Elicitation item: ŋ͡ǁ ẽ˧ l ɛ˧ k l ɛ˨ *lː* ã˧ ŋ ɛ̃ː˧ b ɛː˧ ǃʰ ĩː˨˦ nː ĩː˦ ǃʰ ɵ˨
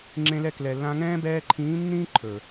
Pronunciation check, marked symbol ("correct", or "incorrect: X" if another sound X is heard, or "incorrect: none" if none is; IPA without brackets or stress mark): correct